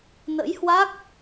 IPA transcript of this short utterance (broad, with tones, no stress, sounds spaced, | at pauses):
n ə̰˧˥ j h w a˦˥ k̚